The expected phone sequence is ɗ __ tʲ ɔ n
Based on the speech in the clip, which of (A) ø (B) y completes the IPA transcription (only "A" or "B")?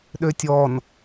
A